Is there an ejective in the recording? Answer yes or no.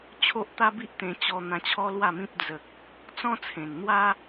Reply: no